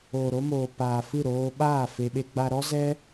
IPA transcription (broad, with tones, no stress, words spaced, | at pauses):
oː˨ɾo˧moː˨paː˨ fɨ˦˨ɾoː˧ ɓaː˦˨ fe˧ɓe˦ ɡ͡ba˧ɾɔ˦ zɛ˦